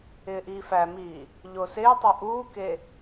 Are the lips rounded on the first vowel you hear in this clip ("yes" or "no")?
no